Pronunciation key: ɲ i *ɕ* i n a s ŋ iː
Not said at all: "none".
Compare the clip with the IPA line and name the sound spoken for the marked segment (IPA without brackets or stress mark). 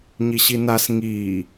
ɕ